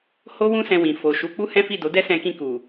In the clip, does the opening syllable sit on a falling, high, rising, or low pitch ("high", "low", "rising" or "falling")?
high